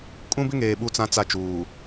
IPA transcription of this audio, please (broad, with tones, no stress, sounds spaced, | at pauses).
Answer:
kʼ ũ˦ b ɪ˦ ŋ eː˨ ɓ u˦˨ t͡s ã˦ t͡s a˦˨ t͡ʃ uː˨